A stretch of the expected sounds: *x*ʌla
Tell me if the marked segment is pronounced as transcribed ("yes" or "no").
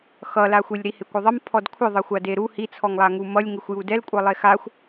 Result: yes